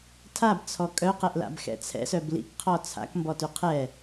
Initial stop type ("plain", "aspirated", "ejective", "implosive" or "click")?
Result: aspirated